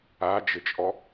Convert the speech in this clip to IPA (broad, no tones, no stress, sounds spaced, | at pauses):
a d͡ʒ ɘ t͡ʃʼ ɔ